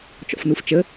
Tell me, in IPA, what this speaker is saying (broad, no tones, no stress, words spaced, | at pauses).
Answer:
t͡ʃɔ̰fnuft͡ʃə